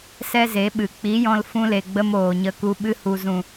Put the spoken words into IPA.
s ɛ˦ z e˨˦ ɓ ɨ˨ k͡p i˨˦ j ɔ̃˧ l f ũ˧ l e˨ ɡ͡b ə˧ m oː˨ ɲ ə˧ k u˧ ɓ ɨ˧ h u˨ z ũ˨

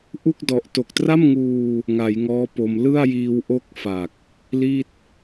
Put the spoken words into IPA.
ʔ u˥˩ k̚ d ɔ˨˩ ʔ t o˨˩ k̚ t r a˥˩ m ŋ uː˧ | ŋ a˩˦ j ŋ ɔː˦˥ p o˧ m l ɯ˥˩ a̯ j iː˧ w ʔ o˥˩ k̚ f a˨˩ k̚ | l i˥˩ t̚

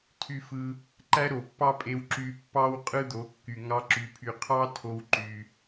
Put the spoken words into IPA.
tʰ y˧ f ɯ˧ | ǃ æ˦ ɾ o˨ pː ɑ˦ pʼ e˧ w ǁ y˧ pː ɑ˦ w qʼ ɯ˦ d̪ o˨˦ kː y˨ ŋ ɑ˦ ǁ y˧ pʰ y˧ qʰ ɑ˦ tʰ o˦ w ǃ y˧

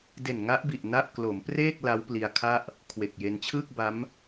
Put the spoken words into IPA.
d e˨˩ n ŋ a˦˥ ʔ b i˨˩ ʔ n a˥˩ ʔ k l o˩˦ m p r eː˥˩ k̚ l a˦˥ w p l i˧ a̯ kʰ a˥˩ ʔ | kʰ w e˨˩ k̚ j e˧ n t͡ɕʰ ɯː˥˩ k̚ b a˦˥ m

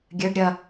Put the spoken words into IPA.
ɡʲ ɘ ɖ ɾʲ ɐ

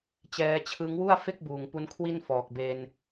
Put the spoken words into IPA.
t͡ɕ ɛː˧ t͡ɕʰ ɯ˦˥ ŋ w u˥˩ a̯ f e˥˩ k̚ b uː˨˩ ŋ p u˦˥ n kʰ w i˥˩ n f ɔː˨˩ k̚ b e˧ n

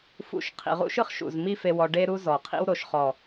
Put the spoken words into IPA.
f ṵ˦˨ ʃ qʰ ḭ˨ ʁ ṵ˦ ʃ ɯ˦ χ ʃ ṵ˨ z m i˦ f e˧ w ɔ˧ ɖ e˦ ɾ u˦ z ɔ˨ qʰ ḭ˦ w ɾ o˨ ʃ χ ɔ˨

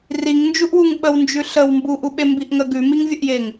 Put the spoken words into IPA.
r i ŋ n d͡ʒ u ʔ w u ŋ ɓ ə w n d͡ʒ ʉ ɬ ə w m b u ʔ u ɓ e m b i ʔ ŋ ə ɡ ʉ m i ŋ vʲ ə ʔ j e ŋ

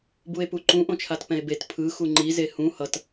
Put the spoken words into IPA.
b u e̯ p u ǃ ũ ʔ õ t͡ʃʰ a t p ɛ̃ e̯ b e t pʰ ɯ x u ŋ͡ǃ i z e h ũ h ʌ t

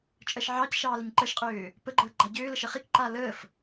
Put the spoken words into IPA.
t͡ʃʼ ɜ ʃ ʕ ɑ c ʃ ɑː l ə ɲ ǃ ɜ ʃ qʼ øː | p ə ɡ͡ǃ əː ɡ͡ǃ a ɟ øː l ə ʃ ɜ χ i k ǃ aː l əː f

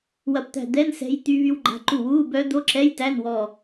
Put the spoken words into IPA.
w ɐ˧˩ p t̪ æ̤˧˩ d̪ ɛ˧˥˧ n s ɛ̤˦˥ j t̪ y˦˥ β y˦˥ w ɡ͡ǃ a̤˧˥˧ ǃ u˥˩ w uː˧˥˧ b œː˦˥ d̪ o˧˥˧ ǁ ɛ˧˥˧ j t æ˧˥˧ n w ɔ˧˩

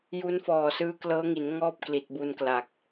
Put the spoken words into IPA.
j u˦˥ n f ɔː˨˩ s ɯː˧ k l ɤː˦˥ ŋ i˩˦ n ŋ ɔː˥˩ p̚ k l i˨˩ t̚ b u˧ n k l a˨˩ k̚

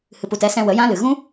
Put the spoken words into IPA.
h ɨ˨ p u˨ t ɛ˧ s ɛ̃˧ w ə˨˦ j ã˦ l ɨ˨ ɣ ũ˦

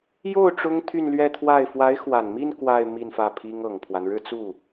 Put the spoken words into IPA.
j o˥˩ ʊ̯ ʈ͡ʂ ʊ˥ ŋ t̪ʰ y˥˧ n l ɥ ɛ˥˧ t̪ʰ w a˥˩ ɪ̯ f w a˧˥ ɪ̯ x w a˨˩ n m i˥˧ n k w a˥˧ ɪ̯ m i˥˧ n f ä˥˩ pʰ i˥ ŋ ɤ˨˩ ŋ pʰ w a˦ n ɻ ɻ̩˥˧ t͡s u˥˩

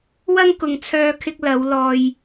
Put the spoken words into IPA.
w ɐ˥ ŋ k ʊ˨ ŋ t͡sʰ œː˧ kʰ ɪ˧ k̚ l ɐ˨˧ w l ɔː˨ j

